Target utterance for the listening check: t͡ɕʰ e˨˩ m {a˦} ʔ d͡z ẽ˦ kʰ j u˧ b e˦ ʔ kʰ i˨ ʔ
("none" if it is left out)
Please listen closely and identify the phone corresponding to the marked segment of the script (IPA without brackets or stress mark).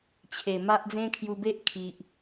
a˦